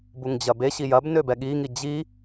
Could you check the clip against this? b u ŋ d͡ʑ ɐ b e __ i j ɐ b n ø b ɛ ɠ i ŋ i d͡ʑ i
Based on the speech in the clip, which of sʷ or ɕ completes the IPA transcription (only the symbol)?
ɕ